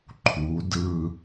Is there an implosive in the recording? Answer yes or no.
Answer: no